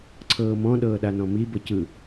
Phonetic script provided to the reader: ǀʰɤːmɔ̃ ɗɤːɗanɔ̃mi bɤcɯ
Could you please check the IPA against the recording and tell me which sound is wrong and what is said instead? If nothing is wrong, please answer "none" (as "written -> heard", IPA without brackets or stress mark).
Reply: none